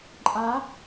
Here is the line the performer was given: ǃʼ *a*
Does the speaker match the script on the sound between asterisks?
yes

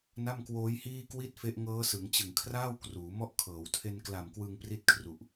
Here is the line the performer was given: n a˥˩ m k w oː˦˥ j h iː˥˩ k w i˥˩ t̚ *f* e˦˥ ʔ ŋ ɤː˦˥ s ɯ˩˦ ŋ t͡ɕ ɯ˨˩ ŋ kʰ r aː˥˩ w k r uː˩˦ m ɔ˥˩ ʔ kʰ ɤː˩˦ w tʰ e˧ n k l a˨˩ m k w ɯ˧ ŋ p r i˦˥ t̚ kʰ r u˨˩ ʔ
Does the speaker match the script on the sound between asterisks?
yes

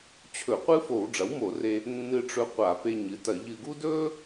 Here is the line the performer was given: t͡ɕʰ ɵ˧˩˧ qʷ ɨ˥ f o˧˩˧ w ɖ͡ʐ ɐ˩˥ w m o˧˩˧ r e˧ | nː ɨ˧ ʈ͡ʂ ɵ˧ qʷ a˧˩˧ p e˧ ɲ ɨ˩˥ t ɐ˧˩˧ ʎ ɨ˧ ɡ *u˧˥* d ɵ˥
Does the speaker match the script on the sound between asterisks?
no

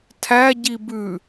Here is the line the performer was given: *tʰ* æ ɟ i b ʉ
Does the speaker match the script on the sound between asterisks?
yes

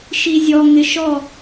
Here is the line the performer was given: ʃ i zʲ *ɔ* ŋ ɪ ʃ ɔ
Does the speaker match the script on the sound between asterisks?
yes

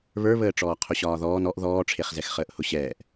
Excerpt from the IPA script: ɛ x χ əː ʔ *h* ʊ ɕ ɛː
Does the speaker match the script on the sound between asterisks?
yes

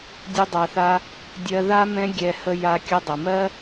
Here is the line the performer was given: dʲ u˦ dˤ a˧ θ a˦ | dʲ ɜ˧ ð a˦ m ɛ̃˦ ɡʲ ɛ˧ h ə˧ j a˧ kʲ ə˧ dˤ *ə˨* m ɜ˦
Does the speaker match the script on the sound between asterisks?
yes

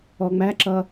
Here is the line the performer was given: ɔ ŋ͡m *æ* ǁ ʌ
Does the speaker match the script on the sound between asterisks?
yes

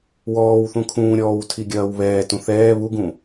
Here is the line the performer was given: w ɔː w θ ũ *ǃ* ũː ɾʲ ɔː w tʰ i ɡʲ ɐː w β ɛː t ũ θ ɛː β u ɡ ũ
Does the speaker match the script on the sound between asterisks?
no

